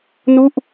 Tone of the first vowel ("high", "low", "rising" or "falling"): falling